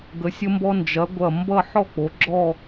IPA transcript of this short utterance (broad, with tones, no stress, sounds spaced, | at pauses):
ɡ ə˩˧ sʲ ə˧ m b ɔ˧ n d͡ʒ ɐ˩˧ ɡʷ ɐ˧˩ m b ʌ˥˧ ħ ɔ˥˧ k͡p o˩˧ ɡ͡ǁ ɔ˥˧